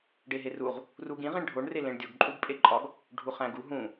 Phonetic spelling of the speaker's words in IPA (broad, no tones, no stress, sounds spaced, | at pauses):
ɖ e ɦ e r u ʁ | r u ɡ ĩ ʁ ĩ ɳ ɖʱ o ɳ r e l ẽ ɳ dʲ o ɡ ǃʼ u ɡ pʼ e ǃʼ ɒ ɡ | ɖʱ u χ æ̃ ɡ u ɦ ũ